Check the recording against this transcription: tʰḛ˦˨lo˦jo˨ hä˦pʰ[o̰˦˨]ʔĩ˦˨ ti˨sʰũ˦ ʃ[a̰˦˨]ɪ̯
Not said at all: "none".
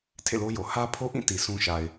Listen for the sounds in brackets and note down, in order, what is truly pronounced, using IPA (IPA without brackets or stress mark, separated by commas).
o˦, a˨